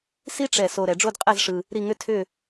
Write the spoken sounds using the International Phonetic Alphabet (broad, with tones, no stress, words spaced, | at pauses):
si˥ʈ͡ʂɛ˧˩ so˧ ɾɛ˩˧ɖ͡ʐo˥˧dqʼɛ˥˧zʂɯ˧ | ɾi˥˧ŋʏ˥ tʰʏ˥˧